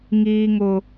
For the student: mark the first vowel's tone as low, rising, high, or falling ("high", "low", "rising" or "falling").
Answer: high